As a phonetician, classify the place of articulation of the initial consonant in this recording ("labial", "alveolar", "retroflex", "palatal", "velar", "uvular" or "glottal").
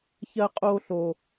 palatal